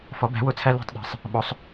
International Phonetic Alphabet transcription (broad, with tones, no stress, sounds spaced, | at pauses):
f ɔ˩˥ b æ̤˩˥ w ʊ˩˥ t͡sʰ æ˧ l æ̤˧ tˤ ɗ æ̤˩˥ sˤ | ɓ ɔ˩˥ sˤ